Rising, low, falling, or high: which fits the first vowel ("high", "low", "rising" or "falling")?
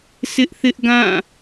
high